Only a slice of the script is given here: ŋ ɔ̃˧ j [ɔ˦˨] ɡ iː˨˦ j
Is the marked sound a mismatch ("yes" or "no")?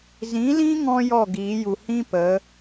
no